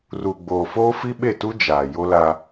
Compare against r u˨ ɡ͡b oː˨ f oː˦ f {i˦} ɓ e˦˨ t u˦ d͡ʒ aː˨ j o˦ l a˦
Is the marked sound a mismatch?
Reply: no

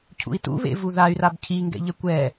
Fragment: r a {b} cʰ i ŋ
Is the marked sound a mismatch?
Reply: no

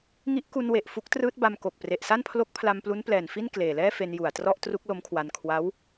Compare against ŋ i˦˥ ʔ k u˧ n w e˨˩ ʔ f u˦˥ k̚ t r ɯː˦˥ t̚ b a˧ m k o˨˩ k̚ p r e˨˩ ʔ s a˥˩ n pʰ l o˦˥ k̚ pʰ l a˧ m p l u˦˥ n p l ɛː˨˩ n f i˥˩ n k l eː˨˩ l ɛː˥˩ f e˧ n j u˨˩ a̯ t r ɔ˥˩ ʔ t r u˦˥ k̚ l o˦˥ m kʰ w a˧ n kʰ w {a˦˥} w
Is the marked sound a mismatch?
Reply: no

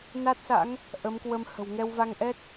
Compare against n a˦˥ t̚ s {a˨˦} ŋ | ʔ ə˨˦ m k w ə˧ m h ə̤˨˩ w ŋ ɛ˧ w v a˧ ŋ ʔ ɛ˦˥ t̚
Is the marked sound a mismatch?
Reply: yes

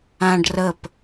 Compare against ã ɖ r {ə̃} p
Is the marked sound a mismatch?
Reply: yes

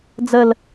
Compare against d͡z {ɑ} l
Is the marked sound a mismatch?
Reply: yes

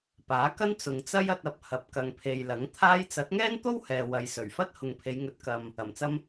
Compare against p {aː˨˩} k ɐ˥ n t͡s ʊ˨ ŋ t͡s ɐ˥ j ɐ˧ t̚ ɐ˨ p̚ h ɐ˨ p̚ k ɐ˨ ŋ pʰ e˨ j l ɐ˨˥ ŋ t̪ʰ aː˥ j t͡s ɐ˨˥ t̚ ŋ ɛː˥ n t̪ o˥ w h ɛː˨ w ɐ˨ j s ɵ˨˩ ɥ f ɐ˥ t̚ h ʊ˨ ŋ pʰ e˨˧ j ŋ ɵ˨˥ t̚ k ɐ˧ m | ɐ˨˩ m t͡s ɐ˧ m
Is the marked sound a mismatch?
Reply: yes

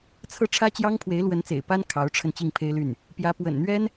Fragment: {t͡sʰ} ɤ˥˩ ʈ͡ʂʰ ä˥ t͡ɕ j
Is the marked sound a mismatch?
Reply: no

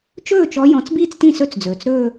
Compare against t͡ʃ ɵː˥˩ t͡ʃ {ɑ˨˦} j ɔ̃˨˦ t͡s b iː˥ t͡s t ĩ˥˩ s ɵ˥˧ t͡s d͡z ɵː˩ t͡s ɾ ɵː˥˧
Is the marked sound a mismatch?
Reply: yes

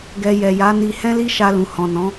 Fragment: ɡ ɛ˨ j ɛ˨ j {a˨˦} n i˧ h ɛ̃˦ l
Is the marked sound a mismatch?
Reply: no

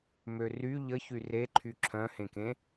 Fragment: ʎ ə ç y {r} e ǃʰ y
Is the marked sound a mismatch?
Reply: no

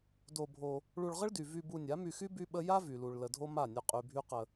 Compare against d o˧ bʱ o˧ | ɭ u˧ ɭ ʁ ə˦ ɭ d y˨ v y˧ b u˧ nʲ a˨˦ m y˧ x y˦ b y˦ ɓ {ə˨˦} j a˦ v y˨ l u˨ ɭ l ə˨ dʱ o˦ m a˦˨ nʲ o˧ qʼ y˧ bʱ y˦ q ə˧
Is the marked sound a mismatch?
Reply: yes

